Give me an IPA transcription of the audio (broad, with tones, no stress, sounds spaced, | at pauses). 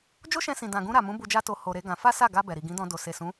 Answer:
d͡ʒ o˦ ʃ ɛ̃˧ s ĩ˨ d ã˨ ɡ ũ˧ ɾ a˨ m ũ˨˦ b u˧ d͡ʒ a˦ t o˧ h o˧ ɾ e˦ ɡ ã˧ f a˦ s a˦˨ ɡ a˧ b ɛ˨ ɾ i˨ ɡ ĩ˨˦ d ɔ̃˧ d o˨ s e˨ s ũ˨˦